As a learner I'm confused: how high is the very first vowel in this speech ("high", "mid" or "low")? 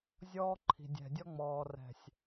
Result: mid